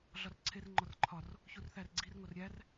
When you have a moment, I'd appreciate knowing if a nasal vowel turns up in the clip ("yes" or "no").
no